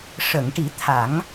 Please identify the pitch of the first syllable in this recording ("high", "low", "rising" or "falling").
low